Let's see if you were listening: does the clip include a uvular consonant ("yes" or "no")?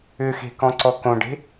no